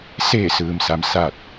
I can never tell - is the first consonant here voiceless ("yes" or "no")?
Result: yes